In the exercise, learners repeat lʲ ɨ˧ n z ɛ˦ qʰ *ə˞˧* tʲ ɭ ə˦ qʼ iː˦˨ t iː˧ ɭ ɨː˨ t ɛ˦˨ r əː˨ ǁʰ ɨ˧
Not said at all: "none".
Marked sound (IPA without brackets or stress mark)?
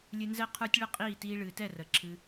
ə˞˧